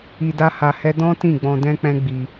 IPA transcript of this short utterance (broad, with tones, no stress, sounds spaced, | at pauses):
i˧ d a˦ h a˧ h ɛ˦ d ɔ̃˦ t ĩ˦˨ ɡ͡b ɔ̃˧ d ɛ̃˦ k͡p ɛ̃˦ ɡ͡b i˧